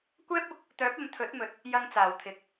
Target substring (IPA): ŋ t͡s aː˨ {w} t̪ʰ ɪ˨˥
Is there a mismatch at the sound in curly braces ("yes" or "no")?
no